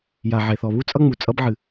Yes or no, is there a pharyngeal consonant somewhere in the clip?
yes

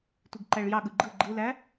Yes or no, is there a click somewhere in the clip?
yes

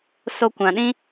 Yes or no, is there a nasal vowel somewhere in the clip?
yes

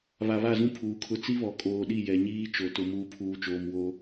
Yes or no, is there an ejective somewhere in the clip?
yes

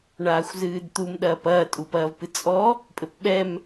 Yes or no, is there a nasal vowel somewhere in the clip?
no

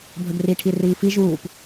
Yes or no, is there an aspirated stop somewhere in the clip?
yes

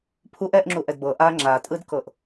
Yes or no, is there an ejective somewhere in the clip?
yes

